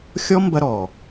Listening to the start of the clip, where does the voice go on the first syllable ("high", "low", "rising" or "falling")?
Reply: high